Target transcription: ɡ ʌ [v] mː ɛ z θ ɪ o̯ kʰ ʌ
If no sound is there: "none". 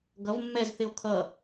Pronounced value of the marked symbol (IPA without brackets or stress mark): v